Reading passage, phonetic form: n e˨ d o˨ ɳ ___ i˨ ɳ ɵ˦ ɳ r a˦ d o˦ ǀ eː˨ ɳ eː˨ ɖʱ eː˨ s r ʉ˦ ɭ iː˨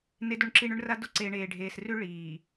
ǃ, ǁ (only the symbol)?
ǁ